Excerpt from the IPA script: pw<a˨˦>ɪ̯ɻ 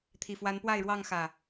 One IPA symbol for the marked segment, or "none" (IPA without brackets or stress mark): a˥˨